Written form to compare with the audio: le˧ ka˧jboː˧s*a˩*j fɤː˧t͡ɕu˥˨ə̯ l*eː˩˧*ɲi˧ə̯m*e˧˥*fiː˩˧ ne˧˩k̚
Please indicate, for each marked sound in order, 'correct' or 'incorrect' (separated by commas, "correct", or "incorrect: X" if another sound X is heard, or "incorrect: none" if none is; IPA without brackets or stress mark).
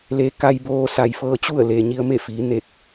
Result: correct, incorrect: eː˩, incorrect: e˥˨